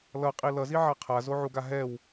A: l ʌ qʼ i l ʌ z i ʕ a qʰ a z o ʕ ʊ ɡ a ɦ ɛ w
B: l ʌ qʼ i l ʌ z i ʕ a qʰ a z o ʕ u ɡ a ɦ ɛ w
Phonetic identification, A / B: B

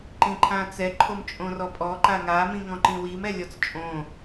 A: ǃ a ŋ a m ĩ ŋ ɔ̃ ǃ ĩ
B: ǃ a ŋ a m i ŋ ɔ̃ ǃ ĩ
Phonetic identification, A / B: A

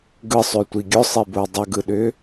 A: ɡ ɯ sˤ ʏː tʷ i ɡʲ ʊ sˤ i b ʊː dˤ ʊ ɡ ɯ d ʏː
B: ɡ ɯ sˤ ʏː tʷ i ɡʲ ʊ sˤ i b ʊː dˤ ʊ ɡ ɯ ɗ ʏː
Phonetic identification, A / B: B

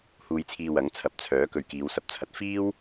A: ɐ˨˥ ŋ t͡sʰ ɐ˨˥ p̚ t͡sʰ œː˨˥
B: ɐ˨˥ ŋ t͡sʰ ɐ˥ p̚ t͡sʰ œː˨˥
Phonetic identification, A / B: A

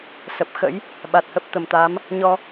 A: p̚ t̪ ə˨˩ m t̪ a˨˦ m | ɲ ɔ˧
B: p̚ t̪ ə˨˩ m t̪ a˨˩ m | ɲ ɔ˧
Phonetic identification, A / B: A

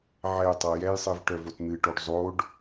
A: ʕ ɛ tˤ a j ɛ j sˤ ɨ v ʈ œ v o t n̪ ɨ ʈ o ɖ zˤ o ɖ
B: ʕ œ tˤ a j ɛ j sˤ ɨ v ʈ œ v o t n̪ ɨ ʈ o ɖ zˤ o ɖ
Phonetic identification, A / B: A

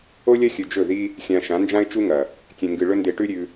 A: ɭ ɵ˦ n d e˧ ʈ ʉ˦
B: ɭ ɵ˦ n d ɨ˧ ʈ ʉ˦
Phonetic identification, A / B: A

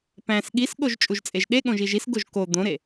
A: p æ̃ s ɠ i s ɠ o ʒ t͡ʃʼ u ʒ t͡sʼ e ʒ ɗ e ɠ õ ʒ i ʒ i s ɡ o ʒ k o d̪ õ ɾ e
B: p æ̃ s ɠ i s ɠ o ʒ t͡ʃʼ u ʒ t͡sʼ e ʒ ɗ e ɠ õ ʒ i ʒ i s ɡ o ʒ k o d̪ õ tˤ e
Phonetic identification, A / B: A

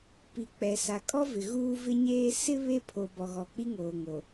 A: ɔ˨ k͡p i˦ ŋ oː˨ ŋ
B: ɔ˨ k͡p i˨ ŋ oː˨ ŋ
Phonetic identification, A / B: A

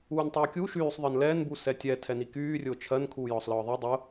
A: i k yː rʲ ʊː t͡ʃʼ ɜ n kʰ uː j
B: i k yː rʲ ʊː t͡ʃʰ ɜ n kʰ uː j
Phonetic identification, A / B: B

